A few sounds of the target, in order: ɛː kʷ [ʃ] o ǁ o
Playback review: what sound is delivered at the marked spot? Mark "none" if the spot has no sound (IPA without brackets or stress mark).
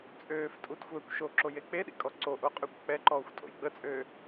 ʃ